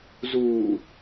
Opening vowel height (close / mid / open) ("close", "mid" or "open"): close